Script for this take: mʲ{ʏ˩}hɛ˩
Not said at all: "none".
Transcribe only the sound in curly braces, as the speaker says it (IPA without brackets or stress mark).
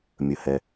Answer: ə˩